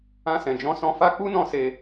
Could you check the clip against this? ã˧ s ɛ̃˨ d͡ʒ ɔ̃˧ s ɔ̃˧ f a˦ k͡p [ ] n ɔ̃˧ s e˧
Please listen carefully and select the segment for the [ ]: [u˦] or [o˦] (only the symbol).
u˦